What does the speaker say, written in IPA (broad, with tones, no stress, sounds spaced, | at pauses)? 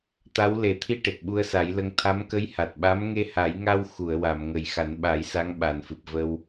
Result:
t̪ a˧˥ w l e˨˩˨ t̪ʰ i˧ ʈ e˨˩ k̚ ɓ u˧ ə̯ s a˨˩˦ j l ə˧ ŋ t̪ʰ a˧˥ m k ə˧˥ j h a˨˩ t̚ ɓ a˧˥ m ŋ e˧ h a˨˩˦ j ŋ a˧ w x u˨˩˨ ə̯ w a˨˩˨ m ŋ ə˨˩ j x a˨˩˦ n ɓ a˨˩˦ j s a˧˥ ŋ ɓ a˨˩ n f ɨ˨˩ p̚ v ə˧ w